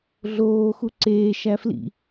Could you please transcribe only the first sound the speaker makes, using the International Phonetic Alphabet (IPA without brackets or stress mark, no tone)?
ɮ